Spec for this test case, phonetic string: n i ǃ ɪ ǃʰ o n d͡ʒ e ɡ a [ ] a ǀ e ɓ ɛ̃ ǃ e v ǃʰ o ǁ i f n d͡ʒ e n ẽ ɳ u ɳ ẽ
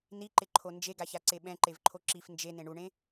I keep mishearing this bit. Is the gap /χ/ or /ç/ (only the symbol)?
ç